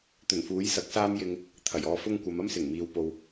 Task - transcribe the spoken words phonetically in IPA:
t̪ ɵ˨˩ n f uː˨˥ j s ɐ˨˥ k̚ s aː˥ m j ɪ˥ ŋ | t̪ʰ ɐ˨˩ j ɔː˧ f ʊ˥ ŋ kʷ ɐ˨˧ m ɐ˥ m s ɪ˨˩ ŋ m iː˨ w p o˧ w

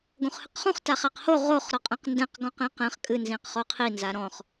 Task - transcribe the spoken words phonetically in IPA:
ɡ õ χ h ɨ q χ ũ χ t a χ a q h o ʁ o χ ɾ ɔ qʼ ɛ̃ q n d ɛ̃ q ɡ ɔ̃ q ĩ q ɛ̃ χ kʼ ɨ n z ĩ q χ o qʰ i n z a ɾ ɔ̃ χ

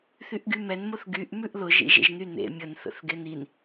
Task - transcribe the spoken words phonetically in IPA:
θ y ʔ ɡ y m ɛ n m ʊ θ ɡ y ʔ m ʉ ʔ l ʊ ʒ ḭ ʒ ḛ ʒ n y n ḛ mʲ ə n θ ə̰ θ ɡ e n i n

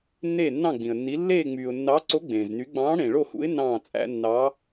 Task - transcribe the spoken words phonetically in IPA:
nː eː˥˧ nː ɑ̃˥˧ ɡ͡b ĩ˨ ə̯ nː i˧˥ lː eː˥˧ ŋ͡m yː˨ ʊ̯ nː ɑ˧˥ ǀ o˧˥ ɡ͡b ẽː˨ z n y˧˥ ɡ͡b ɑ̃ː˧˥ ɽ ẽ˨ ɭ o˥˧ h ṵ˧˥ ɪ̯ n ɑ̃ː˥˧ t͡sʼ æ̰˧˥ nː ɑ˧˥

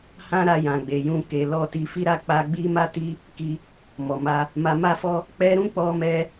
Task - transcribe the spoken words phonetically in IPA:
h ã˦ ɾ a˧ j ã˨ ɡ͡b e˨ j ũ˧ k e˨ l ɔ˧ t i˧ f i˦ ɾ a˦˨ k͡p a˧ ɡ͡b i˦ m a˦ t i˦ | k i˧ | m ɔ˨ m a˧ | m a˧ m a˦ f ɔ˦ | k͡p ɛ˦ ɾ ũ˦ k͡p ɔ˧ m ɛ˧

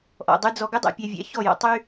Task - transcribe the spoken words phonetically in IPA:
ʔ ɔ̰˨ dˤ y˧ d͡z ɔ˧ ɡ ø˦ dˤ æ̰˧ pʲ æ˧ vʲ æ̰˧ ç ɔ˦˨ j ɔ̰˧ tˤ y˦

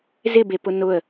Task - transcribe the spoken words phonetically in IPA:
z ɪ b e p ʊ n ʊ ə̯

